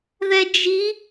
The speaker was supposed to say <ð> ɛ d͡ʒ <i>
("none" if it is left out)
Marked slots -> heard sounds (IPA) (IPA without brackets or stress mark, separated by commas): ð, i